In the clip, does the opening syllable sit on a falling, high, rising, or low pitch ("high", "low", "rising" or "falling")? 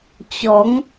rising